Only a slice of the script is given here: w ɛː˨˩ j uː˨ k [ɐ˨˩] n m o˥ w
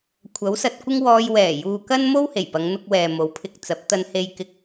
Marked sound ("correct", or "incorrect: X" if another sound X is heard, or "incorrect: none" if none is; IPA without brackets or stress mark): incorrect: ɐ˥